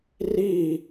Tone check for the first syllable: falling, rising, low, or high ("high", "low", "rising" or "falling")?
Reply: falling